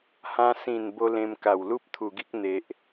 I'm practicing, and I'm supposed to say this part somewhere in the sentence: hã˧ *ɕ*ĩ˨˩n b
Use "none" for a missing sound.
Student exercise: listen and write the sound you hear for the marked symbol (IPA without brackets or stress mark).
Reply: s